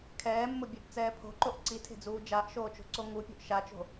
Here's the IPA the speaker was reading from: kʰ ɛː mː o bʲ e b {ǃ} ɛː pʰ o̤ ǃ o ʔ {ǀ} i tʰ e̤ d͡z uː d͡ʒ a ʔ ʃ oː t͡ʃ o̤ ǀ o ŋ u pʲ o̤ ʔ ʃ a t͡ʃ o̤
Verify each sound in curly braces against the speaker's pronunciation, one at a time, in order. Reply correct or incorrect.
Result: incorrect: t͡s, correct

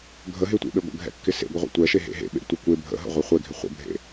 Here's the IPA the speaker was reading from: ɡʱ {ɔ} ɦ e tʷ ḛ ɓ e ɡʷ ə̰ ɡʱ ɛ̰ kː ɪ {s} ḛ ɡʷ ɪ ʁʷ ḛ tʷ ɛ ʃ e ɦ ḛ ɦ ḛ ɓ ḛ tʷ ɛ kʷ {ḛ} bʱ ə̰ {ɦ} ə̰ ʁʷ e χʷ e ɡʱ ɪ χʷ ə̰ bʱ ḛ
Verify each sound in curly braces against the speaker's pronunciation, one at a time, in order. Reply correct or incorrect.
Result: incorrect: ə, correct, incorrect: e, correct

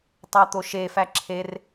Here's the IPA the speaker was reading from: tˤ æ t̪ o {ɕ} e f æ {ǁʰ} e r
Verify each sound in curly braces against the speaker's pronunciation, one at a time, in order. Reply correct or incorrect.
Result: incorrect: ʃ, correct

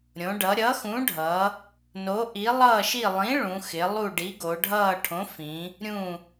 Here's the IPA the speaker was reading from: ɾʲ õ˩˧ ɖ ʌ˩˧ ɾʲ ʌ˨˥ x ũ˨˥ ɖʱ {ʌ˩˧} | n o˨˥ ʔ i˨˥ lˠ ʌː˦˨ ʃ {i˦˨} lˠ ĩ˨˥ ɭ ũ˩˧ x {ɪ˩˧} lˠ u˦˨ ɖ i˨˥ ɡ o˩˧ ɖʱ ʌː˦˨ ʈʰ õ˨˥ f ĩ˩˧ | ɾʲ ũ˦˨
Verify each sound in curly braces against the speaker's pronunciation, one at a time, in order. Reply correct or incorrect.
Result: correct, correct, correct

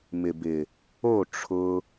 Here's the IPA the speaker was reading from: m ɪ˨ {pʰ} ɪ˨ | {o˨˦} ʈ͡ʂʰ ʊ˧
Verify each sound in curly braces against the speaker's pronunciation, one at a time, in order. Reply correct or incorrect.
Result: incorrect: b, incorrect: o˦˨

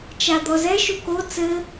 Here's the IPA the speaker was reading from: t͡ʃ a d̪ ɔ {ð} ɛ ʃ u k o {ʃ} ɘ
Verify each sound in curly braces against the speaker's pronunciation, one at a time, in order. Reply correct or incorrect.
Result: incorrect: z, incorrect: t͡s

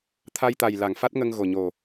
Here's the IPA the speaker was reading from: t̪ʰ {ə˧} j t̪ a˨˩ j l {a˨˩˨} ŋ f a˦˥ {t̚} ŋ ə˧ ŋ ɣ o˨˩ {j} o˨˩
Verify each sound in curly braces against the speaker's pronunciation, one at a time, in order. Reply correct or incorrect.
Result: incorrect: a˧, correct, correct, incorrect: ɲ

